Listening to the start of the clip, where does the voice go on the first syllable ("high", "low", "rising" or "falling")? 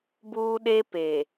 high